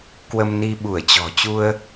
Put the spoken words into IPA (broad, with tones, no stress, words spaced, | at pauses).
kwə˧mni˧ ɓu˧˩ə̯t͡ɕɔ̤˨˩ t͡ɕu˧ə̯